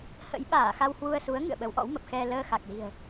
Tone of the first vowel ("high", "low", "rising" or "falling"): rising